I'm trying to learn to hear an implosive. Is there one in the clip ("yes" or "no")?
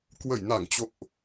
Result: no